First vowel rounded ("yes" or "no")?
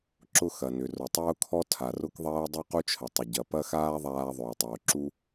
yes